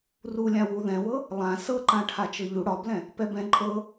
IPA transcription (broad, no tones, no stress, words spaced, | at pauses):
rulʲãwu ðɛ̃wɤ | lˠã sɤǃãʈʰa t͡ʃɤʎu ɽɒblɛ̃ | pɛbɛ̃ ǃʼɤ